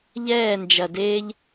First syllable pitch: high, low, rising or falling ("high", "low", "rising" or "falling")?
falling